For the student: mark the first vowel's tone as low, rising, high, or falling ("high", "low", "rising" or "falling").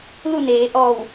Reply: falling